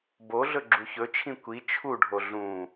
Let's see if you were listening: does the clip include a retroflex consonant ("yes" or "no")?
yes